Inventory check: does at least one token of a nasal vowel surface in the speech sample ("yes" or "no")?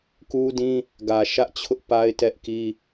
yes